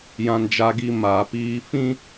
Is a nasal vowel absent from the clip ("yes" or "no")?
no